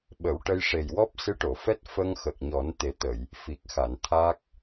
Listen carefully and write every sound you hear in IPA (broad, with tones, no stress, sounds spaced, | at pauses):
ɓ ə˨˩˦ w ʈ ə˧ j ʂ e˨˩ j w ɔ˦˥ p̚ s ɨ˧˥ ʈ o˨˩˨ f ɛ˦˥ t̚ f ə˧ ŋ x ə˨˩ k̚ ɲ ɔ˨˩˦ n t̪ e˨˩˦ t̪ ə˨˩˨ j | f i˨˩ k̚ x a˨˩˨ n t̪ʰ a˦˥ k̚